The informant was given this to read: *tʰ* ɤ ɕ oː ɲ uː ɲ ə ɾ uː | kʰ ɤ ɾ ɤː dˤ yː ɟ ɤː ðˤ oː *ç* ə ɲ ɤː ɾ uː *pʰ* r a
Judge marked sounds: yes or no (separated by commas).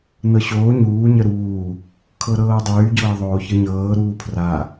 no, yes, yes